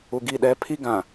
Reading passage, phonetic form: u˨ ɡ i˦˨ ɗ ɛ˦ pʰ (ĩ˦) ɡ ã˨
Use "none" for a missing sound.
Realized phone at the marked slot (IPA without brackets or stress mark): i˦